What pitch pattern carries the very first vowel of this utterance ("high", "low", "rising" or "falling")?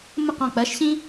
falling